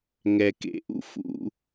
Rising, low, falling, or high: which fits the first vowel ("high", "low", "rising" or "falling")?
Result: low